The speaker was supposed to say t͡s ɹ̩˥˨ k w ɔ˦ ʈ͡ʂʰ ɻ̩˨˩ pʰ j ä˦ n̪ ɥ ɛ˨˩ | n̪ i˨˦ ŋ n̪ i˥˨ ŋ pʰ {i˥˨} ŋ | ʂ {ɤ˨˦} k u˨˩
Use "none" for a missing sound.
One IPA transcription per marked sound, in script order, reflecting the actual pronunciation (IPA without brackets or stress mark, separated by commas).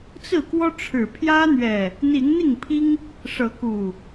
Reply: i˦, ɤ˨˦